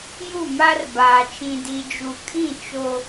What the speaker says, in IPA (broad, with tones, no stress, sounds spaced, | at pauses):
j u˦˨ m a˦ r b aː˨ t͡ʃ ĩ˨ d i˨ d͡ʒ u˨ kʼ ĩ˦˨ t͡ʃ o˦